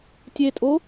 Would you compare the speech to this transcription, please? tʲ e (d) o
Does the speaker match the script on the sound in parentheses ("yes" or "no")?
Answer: no